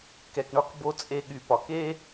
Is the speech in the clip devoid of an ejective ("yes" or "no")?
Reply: no